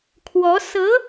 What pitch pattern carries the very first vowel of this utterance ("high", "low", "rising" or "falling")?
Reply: rising